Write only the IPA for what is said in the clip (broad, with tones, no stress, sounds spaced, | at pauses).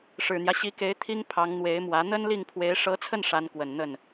ʂ ɻ̩˨˩ n̪ j ä˦ ɕ i˧˥ k e˧˥ ɪ̯ t̪ʰ i˥ ŋ pʰ ɑ˧˥ ŋ n̪ w e˧˥ ɪ̯ m w ä˧˥ n̪ ə˥ n l i˥˩ ŋ pʰ w e˧˥ ɪ̯ ʂ ɤ˧˥ t͡sʰ ə˥˩ n ʂ a˧˥ n k w ə˨˩ n n̪ ə˥˩ n